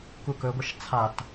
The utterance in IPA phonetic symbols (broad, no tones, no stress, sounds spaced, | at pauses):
k u k ɵ ɡʷ ɐ ʃ t͡sʰ a t